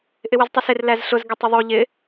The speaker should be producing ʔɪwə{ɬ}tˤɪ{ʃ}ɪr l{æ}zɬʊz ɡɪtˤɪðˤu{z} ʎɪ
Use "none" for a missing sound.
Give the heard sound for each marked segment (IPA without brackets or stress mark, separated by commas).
z, s, æ, none